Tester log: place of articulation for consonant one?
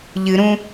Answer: palatal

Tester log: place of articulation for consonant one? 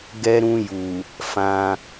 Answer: velar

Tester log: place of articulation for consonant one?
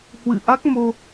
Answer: glottal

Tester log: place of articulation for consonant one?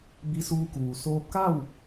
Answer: labial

